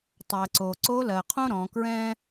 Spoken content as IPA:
tˤ ɜ˩ ǀ o˩ ǀ o˧˥ l ɜ˩ qʰ õ˥ ɾ ɔ̃˩˧ k ɹ ɛ̃˥

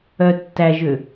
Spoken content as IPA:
œ tː æ ʒ ø

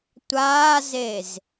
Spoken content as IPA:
tʷ aː z e z

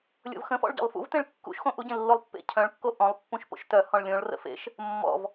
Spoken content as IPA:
lʲ o̰ v x ə̃ f ɔ̰ ɭ ɟ ɔ̰ lˠ f ṵ v t ẽ ɭ kː ṵ ʃ x õ ʔ u ɟ ẽ lː o lˠ pː ḛ cʰ œ̃ ɭ kː o ʔ ɔ̃ lˠ pː ũ ʃ p o̰ ʃ t œ h ɔ̃ ɭ lʲ õ ɭ r ə̰ f ḛ ʃ | mː ɔ̰ v

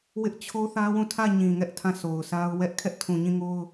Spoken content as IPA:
w ɪ˦ ʔ t͡ɕʰ o˦ θ ä˦ w ũ˦˨ tʰ ä˦˨ ɲ ĩ˨ ŋ ɛ˦ ʔ tʰ ã˦˨ sʰ o˨ ʊ̯ sʰ a˦ ʊ̯ w ɛ˦ ʔ kʰ ɛ˦ ʔ tʰ ũ˨ ɲ ĩ˦˨ ŋ o˦ ʊ̯

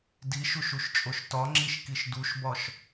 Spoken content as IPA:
d i ʃ u ʃ u ʃ t͡ʃʼ o ʃ t ɒ ŋ͡ǁ i ʃ k i ʃ d u ʃ b ɒ ʃ

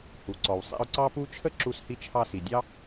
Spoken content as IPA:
h u˩ ǀ ɔ˩ w sˤ ḭ˧ ʊ̯ ǀ ɑ˥ p u˥ t͡ʃʰ ə˥ ǁ u˧ s h i˧ t͡ʃʰ ɑ˧ s i˩ dʲ ɑ˥

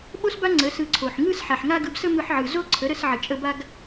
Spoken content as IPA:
ɓ o˦ s b a˦ ŋ͡ǀ ə˨˦ s ɯ˧ ǀʰ o˨ ħ ŋ ɯ˦ s ħ a˨ ħ ŋ a˦ ɡ ɯ˧ b s ə˦ m ɯ˧ ħ ʕ ɯ˨ z o˦ ǀʰ ə˨˦ ɾ ə˧ s ʕ ə˨ t͡ʃʼ ə˧ b a˦ ɡ

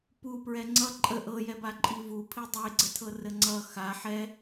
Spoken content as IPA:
p u p ɹ ɛ ŋ͡ǀ ʌ ǃʼ ə ʔ ɤ j ɛ b a ǃʼ i v u pʰ i dˤ e ɡ͡ǀ ə tʰ ɤ r ə ŋ͡ǀ ʌ x a ħ ɛ

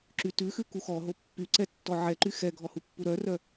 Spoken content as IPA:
ǁ y t ʉ x ʉ k u x ɔ ɦ o pː y ǀ ɛ tː ɔ ʕ ɛ ǃ y x ɛ ɡʱ ɔ h u pː u ɾ œ r œ

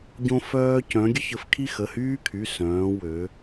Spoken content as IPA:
ɟ õ˦ f œː˦ c œ̃˨˦ ɡʲ ə˦ ç ə˨˦ f kʰ i˦ x ə˩˧˩ h yː˦ kʰ y˩˧˩ s œ̃ː˨˦ w ø˨˦

